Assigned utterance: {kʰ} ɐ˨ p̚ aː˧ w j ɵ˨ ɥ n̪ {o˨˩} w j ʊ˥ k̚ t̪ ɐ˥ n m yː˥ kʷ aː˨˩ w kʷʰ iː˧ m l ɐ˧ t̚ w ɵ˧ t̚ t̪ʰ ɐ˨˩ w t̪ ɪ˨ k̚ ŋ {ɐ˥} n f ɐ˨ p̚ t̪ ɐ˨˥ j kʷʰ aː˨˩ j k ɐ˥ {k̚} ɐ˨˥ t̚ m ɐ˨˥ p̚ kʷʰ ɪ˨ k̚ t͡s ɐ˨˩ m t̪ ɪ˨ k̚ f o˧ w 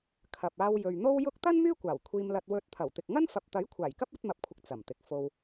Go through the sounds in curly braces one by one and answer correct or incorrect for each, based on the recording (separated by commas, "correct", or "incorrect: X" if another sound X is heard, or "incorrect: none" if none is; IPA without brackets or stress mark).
correct, incorrect: o˥, correct, incorrect: p̚